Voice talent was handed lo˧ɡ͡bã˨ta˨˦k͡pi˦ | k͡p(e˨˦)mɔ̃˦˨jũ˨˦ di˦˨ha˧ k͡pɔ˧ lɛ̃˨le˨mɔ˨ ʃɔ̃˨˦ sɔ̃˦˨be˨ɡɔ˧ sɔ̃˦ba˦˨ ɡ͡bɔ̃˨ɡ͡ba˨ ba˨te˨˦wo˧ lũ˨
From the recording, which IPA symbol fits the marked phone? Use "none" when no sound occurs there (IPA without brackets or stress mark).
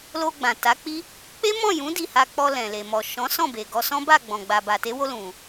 e˦